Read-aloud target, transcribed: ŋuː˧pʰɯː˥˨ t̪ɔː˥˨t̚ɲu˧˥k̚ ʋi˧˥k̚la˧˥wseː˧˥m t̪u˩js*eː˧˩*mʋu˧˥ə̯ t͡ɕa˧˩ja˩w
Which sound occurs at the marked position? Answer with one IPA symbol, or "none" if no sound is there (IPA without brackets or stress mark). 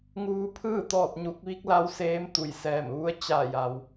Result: ɛː˧˩